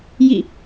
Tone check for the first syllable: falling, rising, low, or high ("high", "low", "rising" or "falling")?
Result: falling